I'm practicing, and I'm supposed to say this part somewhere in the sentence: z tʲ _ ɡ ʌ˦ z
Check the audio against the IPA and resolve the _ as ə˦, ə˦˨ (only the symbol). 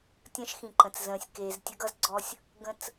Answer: ə˦